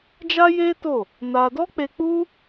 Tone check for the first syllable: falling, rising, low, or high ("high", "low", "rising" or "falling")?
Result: high